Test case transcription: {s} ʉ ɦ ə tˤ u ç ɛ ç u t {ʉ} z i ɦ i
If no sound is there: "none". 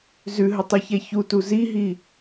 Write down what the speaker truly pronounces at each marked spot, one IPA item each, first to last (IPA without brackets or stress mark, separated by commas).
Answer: z, u